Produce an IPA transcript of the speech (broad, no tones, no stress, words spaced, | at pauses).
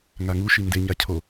ŋaŋu ʃindeɲa cʰo